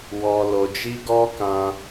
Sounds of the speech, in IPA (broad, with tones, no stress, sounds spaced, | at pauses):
w ɔ˧ l o˧ d͡ʒ i˦ ɡ ɔ˦ k ã˧